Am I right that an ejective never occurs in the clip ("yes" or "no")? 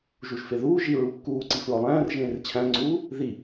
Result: yes